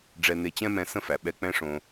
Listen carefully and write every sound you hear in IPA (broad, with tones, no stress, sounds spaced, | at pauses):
ɖ͡ʐ ɛ˧ n e˧ t͡ɕ ɛ̃˦ m ɛ̃˧ s ə̃˦ f æ˨ ɓ ɛ˧ k͡p ɛ̃˦ ʂ õ˧